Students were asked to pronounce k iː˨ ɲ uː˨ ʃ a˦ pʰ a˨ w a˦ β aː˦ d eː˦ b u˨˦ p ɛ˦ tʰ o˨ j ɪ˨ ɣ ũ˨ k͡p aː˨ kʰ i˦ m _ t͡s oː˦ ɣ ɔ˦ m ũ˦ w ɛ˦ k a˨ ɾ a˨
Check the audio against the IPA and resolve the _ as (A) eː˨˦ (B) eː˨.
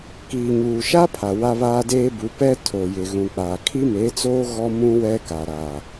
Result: A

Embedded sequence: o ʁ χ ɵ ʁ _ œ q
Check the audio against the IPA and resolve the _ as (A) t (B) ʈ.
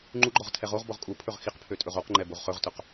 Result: A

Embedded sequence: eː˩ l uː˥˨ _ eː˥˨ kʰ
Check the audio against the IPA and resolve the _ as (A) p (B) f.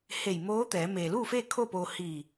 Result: B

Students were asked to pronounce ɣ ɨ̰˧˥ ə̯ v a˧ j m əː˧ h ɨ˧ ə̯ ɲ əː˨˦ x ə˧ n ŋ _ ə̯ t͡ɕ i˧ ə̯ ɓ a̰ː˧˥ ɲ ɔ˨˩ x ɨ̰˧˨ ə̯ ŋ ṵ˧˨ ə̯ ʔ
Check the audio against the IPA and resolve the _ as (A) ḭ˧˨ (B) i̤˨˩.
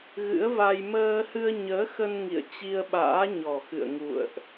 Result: A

